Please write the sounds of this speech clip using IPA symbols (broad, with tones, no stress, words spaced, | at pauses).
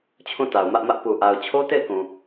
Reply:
t͡ɕʰũ˦˨ ta˨ʊ̯ mä˦ʔmä˦ʔ pu˨ʔa˨ʊ̯ t͡ɕʰo˦te˦˨ɪ̯kũ˨